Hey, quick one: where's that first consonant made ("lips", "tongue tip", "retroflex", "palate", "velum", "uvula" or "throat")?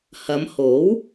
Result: throat